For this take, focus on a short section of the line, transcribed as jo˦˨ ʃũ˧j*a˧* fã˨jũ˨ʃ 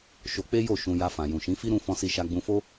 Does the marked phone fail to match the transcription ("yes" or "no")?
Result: no